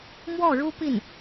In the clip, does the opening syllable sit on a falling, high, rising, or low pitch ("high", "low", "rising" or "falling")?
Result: falling